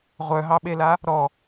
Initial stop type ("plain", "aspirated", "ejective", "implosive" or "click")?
implosive